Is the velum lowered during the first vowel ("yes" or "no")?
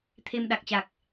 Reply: no